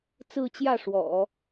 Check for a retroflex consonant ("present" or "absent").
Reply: present